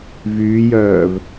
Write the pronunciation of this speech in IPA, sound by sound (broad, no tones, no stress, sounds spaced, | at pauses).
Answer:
v yː j œː v